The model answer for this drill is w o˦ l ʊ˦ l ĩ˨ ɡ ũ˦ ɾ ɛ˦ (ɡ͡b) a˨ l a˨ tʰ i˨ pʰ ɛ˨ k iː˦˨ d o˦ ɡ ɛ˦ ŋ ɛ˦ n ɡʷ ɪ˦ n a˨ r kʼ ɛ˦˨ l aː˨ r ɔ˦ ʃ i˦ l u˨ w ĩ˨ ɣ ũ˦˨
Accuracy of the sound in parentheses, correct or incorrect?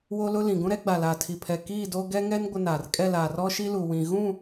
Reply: correct